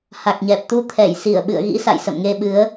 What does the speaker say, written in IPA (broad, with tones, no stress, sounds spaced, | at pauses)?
h a˨˩ k̚ ɲ ɛ˨˩ p̚ t̪ u˧ t̪ʰ ɛ˧˩ j s i˧˩ ə̯ ɓ ɨ̰˧˨ ə̯ ɣ ḭ˧˥ s a̰˧˨ j s ə̰˧˨ m ŋ e˧ ɓ ɨ˨˦ ə̯